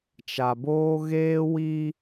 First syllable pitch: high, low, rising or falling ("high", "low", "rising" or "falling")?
low